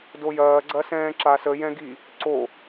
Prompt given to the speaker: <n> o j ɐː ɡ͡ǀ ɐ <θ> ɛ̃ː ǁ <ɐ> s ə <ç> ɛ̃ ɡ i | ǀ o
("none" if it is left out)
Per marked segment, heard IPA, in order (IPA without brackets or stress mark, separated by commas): d, s, a, j